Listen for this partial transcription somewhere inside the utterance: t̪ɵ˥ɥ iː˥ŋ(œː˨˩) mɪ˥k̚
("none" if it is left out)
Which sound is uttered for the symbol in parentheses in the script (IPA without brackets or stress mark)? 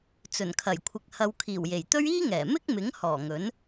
ɛː˨˩